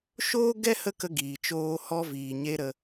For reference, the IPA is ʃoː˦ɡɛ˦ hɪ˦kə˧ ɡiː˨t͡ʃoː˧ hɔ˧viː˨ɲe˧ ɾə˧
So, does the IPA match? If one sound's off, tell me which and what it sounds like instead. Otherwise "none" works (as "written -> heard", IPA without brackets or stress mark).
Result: ɪ˦ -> ə˦